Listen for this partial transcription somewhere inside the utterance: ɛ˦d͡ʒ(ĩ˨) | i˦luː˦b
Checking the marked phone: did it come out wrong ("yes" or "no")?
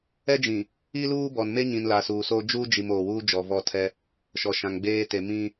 no